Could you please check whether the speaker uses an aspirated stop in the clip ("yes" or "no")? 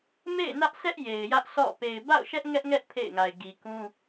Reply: yes